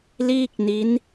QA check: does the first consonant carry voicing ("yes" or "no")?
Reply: yes